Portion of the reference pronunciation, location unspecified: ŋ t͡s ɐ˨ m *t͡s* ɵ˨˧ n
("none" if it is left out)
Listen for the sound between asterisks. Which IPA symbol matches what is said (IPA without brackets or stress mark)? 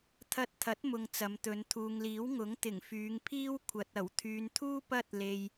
t̪